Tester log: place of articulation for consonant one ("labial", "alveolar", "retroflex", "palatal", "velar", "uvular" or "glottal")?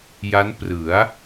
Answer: palatal